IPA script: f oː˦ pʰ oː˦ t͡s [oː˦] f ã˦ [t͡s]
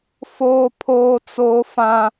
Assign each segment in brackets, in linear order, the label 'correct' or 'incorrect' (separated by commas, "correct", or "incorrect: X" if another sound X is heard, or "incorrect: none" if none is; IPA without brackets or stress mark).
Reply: correct, incorrect: none